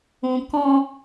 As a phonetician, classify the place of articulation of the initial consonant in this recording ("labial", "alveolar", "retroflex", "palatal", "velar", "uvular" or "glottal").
velar